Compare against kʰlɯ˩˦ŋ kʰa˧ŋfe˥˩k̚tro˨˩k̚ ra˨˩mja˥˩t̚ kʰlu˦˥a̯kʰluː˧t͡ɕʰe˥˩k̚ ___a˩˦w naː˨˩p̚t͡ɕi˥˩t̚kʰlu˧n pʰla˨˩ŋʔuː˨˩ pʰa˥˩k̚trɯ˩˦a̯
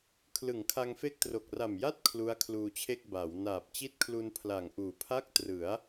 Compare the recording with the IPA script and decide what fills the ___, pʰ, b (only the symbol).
b